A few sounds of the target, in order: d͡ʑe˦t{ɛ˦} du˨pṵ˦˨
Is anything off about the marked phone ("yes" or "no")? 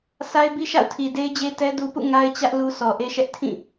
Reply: no